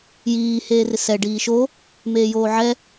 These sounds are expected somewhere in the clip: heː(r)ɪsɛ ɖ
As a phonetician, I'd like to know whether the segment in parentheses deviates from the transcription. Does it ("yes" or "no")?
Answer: no